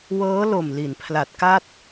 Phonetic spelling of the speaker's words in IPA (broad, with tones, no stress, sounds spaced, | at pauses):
w ɤː˦˥ l o˨˩ m l i˩˦ n pʰ l a˨˩ t̚ k a˥˩ t̚